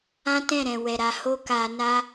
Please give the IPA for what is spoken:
ã˦ t ɛ̃˦˨ ɾ ɛ̃˨ w ɛ˨ ɾ a˧ h o˦ k a˧ n a˦

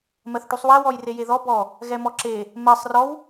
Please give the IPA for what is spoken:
m ɜ θ ʈ u sˤ w ɛ w ɔ j r e j e ð ɔ b ɔ | ɣ ɛ m ɔ ǁ e | m ɜ sˤ r ɔ w

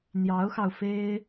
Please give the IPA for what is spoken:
n̪ j ɑ˧˥ ʊ̯ x ɑ˧ ʊ̯ f e˥ ɪ̯

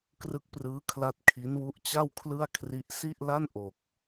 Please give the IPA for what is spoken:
k r ɯ˦˥ k̚ p r ɯː˦˥ kʰ l a˦˥ t̚ kʰ i˦˥ n w u˦˥ ʔ t͡ɕ a˥˩ w kʰ l ɯ˥˩ a̯ kʰ r i˦˥ ʔ s i˥˩ ʔ l a˥˩ n ʔ o˨˩ k̚

